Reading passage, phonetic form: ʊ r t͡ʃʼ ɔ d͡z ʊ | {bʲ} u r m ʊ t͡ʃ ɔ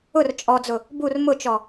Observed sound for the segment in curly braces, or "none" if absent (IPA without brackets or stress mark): b